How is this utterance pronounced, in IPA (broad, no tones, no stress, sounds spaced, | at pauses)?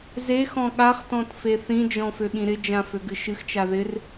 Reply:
z e x ɔ̃ ɠ a χ t ɔ̃ t f e θ ĩ d͡ʒ ɔ̃ f ø ɠ ĩ ɾ ɪ d͡ʒ ã f ø ɡ ɨ ʃ ɨ x t͡ʃ a ð ɪ r